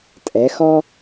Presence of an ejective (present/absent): present